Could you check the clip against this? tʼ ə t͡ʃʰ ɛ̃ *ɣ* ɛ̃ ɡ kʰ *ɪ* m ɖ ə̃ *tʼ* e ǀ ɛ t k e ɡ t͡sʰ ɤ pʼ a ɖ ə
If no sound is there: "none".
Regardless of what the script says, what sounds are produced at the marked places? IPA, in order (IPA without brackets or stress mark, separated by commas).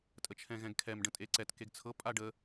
ɣ, ɛ, tʼ